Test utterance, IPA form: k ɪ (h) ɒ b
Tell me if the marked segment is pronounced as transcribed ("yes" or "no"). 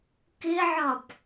no